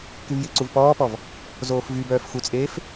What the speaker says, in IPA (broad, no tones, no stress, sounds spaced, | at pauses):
k y v j ɪ ǀ u v p ɔː p ɔ v | z oː f v y b œː f x u t͡sʼ eː f